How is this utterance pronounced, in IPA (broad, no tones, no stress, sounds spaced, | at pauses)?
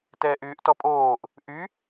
t ɛː ʔ yː ʔ t ɔ pʼ oː ʔ | ʔ y